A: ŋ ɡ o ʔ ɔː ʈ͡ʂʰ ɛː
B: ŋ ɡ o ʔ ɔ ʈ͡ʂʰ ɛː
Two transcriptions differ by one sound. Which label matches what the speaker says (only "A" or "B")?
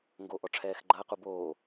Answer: B